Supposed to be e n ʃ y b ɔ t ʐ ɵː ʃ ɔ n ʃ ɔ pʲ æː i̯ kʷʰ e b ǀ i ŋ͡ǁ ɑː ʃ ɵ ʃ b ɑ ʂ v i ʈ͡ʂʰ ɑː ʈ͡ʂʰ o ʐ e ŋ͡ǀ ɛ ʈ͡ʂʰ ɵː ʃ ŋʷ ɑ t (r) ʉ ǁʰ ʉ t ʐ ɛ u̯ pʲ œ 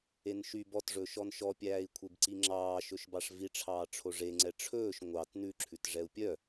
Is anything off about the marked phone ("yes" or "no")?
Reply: yes